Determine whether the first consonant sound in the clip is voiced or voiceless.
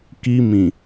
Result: voiceless